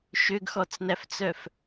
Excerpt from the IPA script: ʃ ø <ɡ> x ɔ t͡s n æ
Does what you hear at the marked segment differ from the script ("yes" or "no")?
no